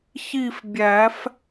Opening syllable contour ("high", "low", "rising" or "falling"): falling